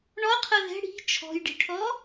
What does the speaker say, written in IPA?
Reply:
ɳ ɔ qʰ ɤ ð ɛ̤ ɽ i̤ t͡ʃʰ ɔ̤ j ɖ i̤ ʈʰ ɔ

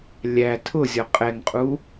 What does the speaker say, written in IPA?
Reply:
lʲ æ tʰ ʊ zʲ ɔ qʼ ɛ ŋ qʼ u

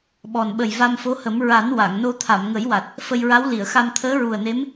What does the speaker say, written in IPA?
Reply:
ɓ ɔ˨˩ n ɓ ə˨˩ j v a˧ m f o˧˥ h ə˨˩˦ m ɹ a˨˩˦ n w a˨˩˨ ŋ n o˧ t̪ʰ a˨˩˨ m ŋ ə˨˩˦ j w a˨˩ t̚ | f ə˧ j ɹ a˧˥ w l i˨˩˨ ə̯ x a˧ m t̪ʰ əː˧˥ ɹ u˨˩ ə̯ n e˧˥ m

